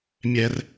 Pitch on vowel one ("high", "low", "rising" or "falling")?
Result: high